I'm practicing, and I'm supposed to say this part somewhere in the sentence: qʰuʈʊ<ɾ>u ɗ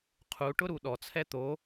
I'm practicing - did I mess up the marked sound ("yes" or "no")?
no